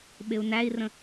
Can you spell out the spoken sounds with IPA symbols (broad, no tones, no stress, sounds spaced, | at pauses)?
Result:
ɓ ɪ u̯ n æ i̯ r ə̃